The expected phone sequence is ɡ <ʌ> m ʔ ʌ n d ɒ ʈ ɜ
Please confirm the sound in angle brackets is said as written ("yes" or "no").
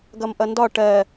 yes